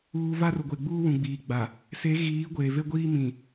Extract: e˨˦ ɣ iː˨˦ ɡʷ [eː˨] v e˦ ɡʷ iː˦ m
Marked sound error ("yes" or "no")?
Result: no